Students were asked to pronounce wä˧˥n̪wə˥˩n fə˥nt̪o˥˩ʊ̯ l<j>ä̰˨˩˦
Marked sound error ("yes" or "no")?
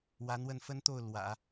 yes